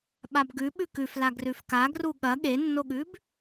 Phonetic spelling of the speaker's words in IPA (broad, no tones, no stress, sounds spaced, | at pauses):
ɓ a b ɡ ʉ ɓ ʉ k ʉ f l a ɡ r ʉ f k a ɡ r u ɠ ɐ ɠ e nː o ɠ ʉ b